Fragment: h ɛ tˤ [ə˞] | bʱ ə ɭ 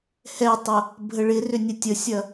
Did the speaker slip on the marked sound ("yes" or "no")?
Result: yes